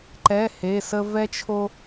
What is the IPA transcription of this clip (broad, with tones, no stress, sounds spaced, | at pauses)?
ǃ ɛ˧˥˧ h e˧˥˧ s ə˥ v ɛ˥ t͡ʃʰ o˥